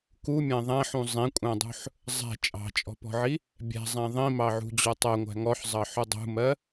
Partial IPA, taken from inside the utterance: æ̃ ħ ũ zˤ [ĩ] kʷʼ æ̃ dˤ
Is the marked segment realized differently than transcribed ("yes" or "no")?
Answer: no